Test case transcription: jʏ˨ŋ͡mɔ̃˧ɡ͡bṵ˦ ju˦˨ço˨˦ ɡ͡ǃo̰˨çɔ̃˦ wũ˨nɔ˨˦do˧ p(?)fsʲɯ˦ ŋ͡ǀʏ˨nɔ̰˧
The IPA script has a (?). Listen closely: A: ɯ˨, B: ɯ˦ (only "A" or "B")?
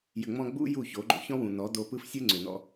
B